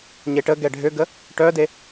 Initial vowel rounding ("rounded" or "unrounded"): unrounded